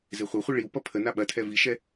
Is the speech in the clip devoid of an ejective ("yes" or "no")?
yes